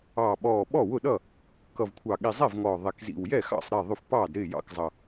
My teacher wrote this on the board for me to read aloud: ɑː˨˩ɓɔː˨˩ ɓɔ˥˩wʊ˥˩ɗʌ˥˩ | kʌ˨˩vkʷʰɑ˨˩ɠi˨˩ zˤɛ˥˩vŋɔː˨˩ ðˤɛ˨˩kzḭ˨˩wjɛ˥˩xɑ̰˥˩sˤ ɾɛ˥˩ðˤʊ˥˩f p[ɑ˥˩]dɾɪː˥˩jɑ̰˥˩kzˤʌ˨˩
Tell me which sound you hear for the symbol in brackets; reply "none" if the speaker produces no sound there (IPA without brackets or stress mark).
ɑː˥˩